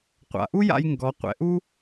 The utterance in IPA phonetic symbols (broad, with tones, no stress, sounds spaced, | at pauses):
qʷ a̰˩ ʔ u˥ j a̰˧ j ŋ ɡ ɔ˩˧ qʷ ɛ̰˩˧ ʔ u˥